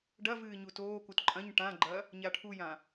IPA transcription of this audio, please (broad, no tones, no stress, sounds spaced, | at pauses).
ɖ ɐ v ɨː ɲ u t oː k u t ǃʼ ɐ̃ ɲ ʈ ã ɡ͡ǃ ɐ | ɲ a ʈʰ u j ã